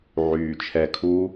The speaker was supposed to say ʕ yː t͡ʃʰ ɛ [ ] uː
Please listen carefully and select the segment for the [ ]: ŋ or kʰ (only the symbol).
kʰ